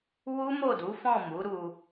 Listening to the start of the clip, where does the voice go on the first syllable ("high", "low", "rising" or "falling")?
high